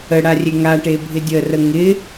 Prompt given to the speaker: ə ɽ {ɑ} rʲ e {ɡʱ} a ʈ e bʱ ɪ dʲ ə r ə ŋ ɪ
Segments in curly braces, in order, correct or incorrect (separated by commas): incorrect, incorrect